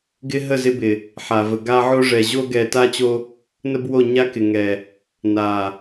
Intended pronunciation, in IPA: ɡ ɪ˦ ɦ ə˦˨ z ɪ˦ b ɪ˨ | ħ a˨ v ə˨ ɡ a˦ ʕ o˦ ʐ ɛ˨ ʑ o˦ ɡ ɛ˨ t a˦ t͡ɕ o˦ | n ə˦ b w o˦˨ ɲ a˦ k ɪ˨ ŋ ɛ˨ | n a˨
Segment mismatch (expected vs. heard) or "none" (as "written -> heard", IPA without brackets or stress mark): none